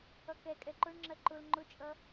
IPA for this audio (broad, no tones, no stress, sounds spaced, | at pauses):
ʌ k ɛ kʼ ɛ ǃ ʊ ɳ ŋ͡ǁ ɜ ǃ ʊ l ŋ͡ǃ ʊ t͡ʃʼ ʌ